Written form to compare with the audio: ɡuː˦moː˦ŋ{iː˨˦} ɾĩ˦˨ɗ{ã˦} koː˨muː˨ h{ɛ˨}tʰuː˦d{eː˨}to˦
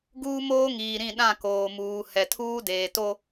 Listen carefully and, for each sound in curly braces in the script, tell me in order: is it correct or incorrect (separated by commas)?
incorrect, incorrect, correct, correct